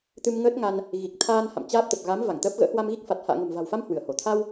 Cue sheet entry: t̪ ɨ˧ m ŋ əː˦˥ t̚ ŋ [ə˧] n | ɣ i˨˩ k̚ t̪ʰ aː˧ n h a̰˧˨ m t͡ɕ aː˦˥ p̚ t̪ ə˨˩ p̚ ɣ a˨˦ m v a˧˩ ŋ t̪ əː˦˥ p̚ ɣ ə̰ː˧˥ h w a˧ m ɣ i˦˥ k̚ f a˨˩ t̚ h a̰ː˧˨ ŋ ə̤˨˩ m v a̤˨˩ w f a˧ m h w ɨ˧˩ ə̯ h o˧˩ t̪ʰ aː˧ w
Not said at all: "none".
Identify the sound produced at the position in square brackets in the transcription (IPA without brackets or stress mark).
a˧